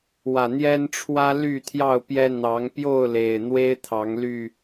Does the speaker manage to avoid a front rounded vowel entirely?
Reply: no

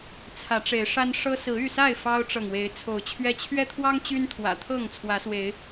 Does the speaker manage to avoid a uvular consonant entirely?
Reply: yes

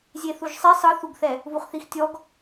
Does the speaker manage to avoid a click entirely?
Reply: yes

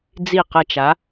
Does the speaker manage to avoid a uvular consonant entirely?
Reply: no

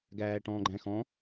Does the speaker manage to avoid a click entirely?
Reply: no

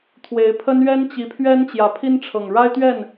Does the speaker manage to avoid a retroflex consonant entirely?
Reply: no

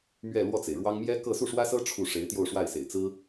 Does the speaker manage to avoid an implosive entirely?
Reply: yes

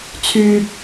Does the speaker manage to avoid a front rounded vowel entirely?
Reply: no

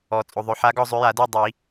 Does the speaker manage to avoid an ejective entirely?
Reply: no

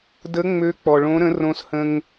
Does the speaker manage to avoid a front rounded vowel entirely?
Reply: no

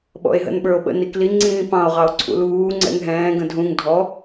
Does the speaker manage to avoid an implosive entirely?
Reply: no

